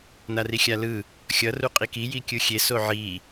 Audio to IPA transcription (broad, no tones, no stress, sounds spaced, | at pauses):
n a r i xʲ a l ɯ | xʲ ʌ r u qʼ i k i j i kʲ ɯ xʲ e s o ʕ i